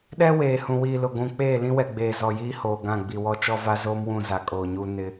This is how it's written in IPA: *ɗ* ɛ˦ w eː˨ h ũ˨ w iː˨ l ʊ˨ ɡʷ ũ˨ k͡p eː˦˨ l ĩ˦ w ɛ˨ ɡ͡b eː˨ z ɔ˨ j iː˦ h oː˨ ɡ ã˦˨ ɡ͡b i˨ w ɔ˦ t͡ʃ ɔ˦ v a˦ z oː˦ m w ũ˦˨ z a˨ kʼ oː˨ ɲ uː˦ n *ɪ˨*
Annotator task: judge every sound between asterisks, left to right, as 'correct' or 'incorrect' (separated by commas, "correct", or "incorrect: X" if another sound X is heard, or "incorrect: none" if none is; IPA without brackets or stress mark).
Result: correct, incorrect: ɪ˦